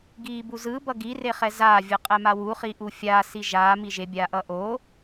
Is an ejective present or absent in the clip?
present